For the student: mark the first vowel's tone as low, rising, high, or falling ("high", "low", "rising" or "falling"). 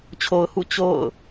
low